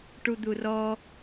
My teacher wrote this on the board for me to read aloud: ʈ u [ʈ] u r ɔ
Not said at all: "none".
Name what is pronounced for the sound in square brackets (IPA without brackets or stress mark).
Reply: d̪